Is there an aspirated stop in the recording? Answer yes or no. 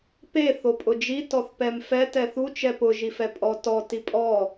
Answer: no